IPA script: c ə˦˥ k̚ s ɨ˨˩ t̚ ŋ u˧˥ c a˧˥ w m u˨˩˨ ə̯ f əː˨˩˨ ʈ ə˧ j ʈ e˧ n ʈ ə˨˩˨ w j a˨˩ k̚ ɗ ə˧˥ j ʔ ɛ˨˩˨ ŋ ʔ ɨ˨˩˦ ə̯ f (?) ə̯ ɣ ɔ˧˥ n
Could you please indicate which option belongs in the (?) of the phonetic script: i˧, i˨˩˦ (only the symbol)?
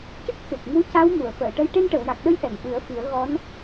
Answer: i˨˩˦